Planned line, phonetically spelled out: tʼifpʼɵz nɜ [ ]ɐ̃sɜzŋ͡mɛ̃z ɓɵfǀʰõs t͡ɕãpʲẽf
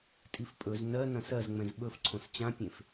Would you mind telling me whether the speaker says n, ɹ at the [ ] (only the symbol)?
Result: n